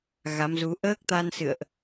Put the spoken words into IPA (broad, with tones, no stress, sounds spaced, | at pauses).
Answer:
ɣ a˨˦ m z u˨˦ ʔ əː˦˥ k̚ t̪ a˧ n s ɨ̰˧˨ ə̯ ʔ